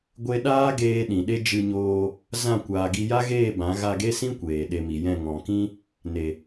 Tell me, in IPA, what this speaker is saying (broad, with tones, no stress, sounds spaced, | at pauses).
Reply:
ɡʷ e˧ ɗ aː˦ ɡ eː˧ ɗ ĩ˨ ɗ e˦ d͡ʒ ɨ˧ ɲ oː˧ | z ã˦˨ kʷ aː˨ ɡ i˧ j a˦ ɣ eː˦˨ b ã˨˦ ɣ a˧ ɡ e˦ s ĩ˦ kʷ eː˨ ɗ e˧ m i˨ j ɛ̃˦˨ ŋ ɔ̃˨ k ĩ˦ | n e˨